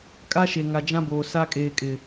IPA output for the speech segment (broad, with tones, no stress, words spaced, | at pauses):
kʼa˦ʃe˨ŋa˨ d͡ʒã˦boː˨ sa˦ kʼeː˨kʼɪ˨